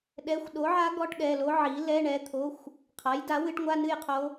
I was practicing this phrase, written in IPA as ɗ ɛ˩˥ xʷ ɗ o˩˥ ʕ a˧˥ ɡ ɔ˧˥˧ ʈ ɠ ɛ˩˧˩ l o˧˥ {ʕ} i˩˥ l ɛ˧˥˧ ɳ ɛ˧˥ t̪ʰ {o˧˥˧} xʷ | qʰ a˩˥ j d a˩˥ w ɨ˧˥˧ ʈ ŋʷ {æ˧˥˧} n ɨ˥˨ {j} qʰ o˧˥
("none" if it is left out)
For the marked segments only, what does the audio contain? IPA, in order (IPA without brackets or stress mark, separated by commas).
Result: ʕ, o˧˥˧, a˧˥˧, j